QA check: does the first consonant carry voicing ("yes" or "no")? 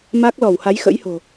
yes